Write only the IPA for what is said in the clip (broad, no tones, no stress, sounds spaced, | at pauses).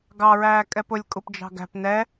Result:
ɡ ɑ ɹ æː kʼ ɛ p ʊ lʲ kʼ u p d͡ʒ ɑ̤ ɡ æ̤ p n ɛ